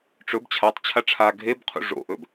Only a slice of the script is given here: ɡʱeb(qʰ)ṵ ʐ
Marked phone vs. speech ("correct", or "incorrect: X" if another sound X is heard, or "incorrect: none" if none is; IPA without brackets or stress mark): correct